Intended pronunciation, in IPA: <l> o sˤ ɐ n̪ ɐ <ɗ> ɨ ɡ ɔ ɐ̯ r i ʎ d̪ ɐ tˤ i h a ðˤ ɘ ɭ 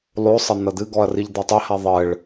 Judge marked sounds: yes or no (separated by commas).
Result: no, no